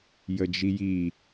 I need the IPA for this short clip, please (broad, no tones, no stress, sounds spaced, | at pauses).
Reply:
j ə d͡ʒ i j i